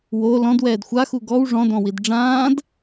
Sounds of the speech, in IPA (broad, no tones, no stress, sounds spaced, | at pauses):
w o l ɔ̃ d w ɛː d xʷ a x u ɡ ɔ w ʐ ɔ̃ d ɔ̃ w i d ɖ͡ʐ ãː d